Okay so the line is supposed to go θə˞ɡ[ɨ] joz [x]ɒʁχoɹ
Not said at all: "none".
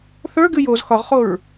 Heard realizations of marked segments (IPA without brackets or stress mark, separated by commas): ɨ, x